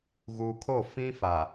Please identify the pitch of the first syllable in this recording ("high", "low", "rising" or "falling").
low